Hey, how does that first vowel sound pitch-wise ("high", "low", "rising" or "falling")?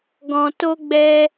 low